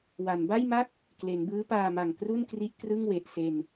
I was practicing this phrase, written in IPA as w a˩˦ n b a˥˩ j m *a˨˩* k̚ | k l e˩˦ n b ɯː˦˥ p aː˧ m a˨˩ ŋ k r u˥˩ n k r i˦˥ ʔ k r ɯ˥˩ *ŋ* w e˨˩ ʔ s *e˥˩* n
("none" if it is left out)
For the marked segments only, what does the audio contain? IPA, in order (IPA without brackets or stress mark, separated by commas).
a˥˩, ŋ, e˧